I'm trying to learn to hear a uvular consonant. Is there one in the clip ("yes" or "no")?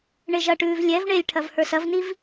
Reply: no